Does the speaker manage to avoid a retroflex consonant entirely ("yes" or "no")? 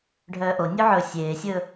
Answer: no